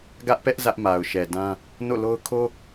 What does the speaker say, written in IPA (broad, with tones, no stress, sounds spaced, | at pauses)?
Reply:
ɡ ä˦ ʔ p ɛ˦ ʔ z ä˦ ʔ m a˨ ʊ̯ ʃ ɛ˨ d ã˦ | n o̰˦˨ l o˦ ʊ̯ kʰ o˦